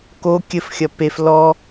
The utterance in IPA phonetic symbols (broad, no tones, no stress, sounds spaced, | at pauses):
k o kʲ ɘ f xʲ ɐ p e f l ɔ